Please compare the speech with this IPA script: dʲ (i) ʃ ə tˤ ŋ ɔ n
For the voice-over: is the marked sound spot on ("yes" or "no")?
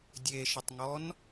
no